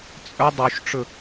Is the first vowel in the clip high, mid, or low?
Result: mid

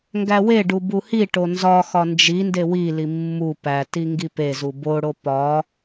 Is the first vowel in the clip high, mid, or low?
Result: low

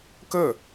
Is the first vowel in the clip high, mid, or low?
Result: mid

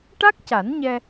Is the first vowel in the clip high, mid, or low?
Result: low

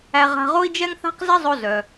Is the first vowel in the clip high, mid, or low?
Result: low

